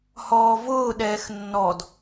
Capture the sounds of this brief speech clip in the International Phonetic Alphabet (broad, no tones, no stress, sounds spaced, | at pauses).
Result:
h ɔː v ʊː ɗ ɛː x nː ɔ d